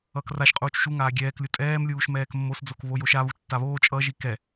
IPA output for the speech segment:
ʌkraʃqʼuːt͡ʃ ʃu ŋaːɡʲɛːklʲu tʼɛːmlʲuːʃ mɛːkmːosd͡zok βojoʃa βut͡ʃtːaβoː t͡ʃʼʌ ʒikɛ

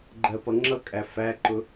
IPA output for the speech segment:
ɡ͡ǃɜpʌŋ͡ǁʌkʼæ fæǃʊ

